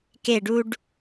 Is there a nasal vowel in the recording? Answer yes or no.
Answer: no